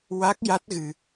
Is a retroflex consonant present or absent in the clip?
absent